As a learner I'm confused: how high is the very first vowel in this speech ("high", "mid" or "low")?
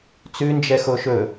high